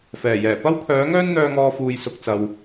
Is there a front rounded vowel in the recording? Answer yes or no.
yes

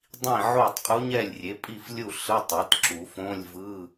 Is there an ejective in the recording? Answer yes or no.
yes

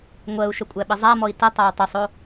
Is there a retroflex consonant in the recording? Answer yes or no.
no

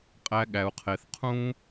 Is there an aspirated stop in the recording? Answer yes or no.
yes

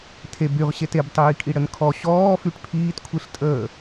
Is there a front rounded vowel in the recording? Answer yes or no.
yes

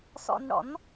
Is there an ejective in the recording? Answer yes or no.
no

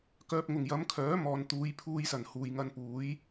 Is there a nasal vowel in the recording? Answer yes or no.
no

